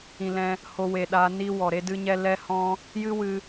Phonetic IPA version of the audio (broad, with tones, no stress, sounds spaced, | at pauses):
ĩ˨ l ɛ̃˧ | h o˧ w e˨ ɗ a˧ n i˦ w ɔ˨ ɾ e˦ d ɨ˦ ɲ ɛ˦ l ɛ˦ h ɔ̃˦ | j ɨ˦ w ɨ˧